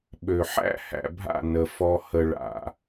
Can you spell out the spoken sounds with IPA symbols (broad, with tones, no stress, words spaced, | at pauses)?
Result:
ɓø˨ħæ̰˦ hæ̰˨bʱa̰˦˨ nə˨ fɔ˨hə˨ ɭa̰˨